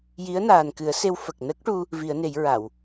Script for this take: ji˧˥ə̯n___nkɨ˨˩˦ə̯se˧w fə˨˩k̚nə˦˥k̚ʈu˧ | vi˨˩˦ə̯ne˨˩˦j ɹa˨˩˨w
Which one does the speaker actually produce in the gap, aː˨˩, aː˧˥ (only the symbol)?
aː˨˩